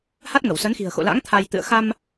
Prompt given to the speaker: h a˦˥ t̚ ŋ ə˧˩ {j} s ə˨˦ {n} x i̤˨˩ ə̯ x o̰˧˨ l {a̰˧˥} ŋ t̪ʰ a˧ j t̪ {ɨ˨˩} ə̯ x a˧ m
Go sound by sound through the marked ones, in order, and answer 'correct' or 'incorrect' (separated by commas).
incorrect, correct, correct, incorrect